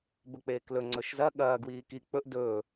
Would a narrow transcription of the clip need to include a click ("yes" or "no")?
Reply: yes